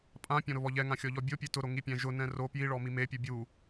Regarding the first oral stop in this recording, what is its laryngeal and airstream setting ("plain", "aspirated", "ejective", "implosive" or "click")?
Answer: ejective